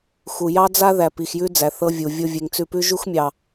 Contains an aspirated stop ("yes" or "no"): no